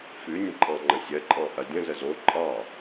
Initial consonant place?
labial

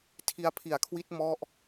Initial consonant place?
alveolar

